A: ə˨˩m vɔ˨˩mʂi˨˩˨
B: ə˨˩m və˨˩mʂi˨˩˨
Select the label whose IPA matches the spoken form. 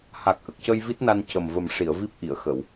B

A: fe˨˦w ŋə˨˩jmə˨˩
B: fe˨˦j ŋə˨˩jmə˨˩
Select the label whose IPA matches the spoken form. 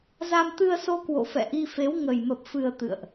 A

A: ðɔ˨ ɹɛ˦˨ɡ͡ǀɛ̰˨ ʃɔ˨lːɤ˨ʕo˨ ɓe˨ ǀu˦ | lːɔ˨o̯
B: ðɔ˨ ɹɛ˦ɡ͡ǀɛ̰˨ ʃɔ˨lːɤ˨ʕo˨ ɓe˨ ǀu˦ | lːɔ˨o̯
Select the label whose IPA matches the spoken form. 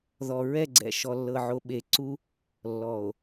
A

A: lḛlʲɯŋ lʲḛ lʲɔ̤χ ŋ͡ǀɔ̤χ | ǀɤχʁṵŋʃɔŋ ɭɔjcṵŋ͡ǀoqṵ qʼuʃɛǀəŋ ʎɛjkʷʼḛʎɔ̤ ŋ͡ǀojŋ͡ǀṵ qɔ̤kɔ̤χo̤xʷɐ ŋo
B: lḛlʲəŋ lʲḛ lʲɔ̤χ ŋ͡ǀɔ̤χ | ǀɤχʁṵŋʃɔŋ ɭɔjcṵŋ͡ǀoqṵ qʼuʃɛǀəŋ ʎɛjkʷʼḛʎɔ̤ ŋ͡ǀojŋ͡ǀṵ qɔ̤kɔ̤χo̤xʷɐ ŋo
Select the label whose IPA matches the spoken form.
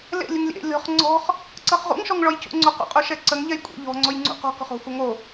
A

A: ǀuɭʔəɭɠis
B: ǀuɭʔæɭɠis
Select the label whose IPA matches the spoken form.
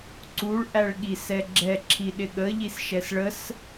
B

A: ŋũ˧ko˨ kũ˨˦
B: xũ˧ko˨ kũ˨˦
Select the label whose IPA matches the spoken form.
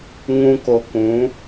A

